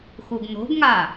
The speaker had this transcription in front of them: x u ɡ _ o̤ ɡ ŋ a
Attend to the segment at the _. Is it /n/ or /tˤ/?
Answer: n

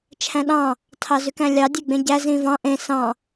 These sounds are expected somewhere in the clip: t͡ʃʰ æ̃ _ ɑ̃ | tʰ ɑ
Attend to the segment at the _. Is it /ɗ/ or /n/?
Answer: ɗ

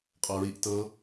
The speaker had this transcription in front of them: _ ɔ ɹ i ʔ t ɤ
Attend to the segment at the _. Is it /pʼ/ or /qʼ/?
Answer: qʼ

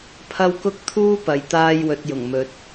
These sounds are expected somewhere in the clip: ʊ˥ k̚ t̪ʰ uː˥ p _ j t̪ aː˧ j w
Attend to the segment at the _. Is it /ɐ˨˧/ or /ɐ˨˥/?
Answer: ɐ˨˧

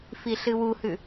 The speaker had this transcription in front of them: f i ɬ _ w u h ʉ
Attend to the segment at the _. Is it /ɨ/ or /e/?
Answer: ɨ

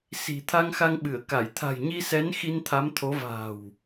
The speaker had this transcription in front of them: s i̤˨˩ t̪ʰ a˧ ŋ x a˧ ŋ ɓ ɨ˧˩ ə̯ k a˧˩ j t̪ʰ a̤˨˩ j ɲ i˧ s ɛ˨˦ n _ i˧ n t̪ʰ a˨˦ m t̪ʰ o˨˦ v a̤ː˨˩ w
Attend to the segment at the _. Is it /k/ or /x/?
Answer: x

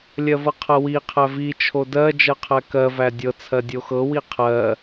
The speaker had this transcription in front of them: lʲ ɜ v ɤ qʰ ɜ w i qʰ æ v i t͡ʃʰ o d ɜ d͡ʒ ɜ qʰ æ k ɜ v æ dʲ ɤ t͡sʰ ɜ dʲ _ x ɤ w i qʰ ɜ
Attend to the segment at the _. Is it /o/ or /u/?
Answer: o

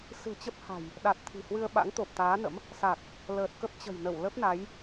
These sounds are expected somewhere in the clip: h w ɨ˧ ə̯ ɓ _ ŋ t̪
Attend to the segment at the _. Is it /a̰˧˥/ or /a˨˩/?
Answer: a̰˧˥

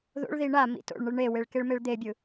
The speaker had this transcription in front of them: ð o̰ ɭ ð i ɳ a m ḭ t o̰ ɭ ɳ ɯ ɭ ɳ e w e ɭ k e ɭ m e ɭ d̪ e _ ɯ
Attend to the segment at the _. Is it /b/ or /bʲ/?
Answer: bʲ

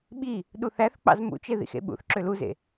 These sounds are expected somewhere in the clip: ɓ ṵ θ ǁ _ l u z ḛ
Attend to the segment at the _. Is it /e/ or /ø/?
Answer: ø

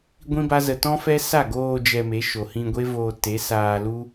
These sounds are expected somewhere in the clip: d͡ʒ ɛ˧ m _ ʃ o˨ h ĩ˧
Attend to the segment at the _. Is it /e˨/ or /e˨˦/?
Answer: e˨˦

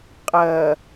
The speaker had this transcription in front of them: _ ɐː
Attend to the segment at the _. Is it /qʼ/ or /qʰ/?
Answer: qʼ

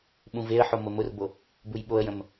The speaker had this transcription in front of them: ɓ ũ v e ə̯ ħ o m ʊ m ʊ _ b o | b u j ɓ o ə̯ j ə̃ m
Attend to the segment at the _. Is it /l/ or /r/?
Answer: r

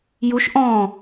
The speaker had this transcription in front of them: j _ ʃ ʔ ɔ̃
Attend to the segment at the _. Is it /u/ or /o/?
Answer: u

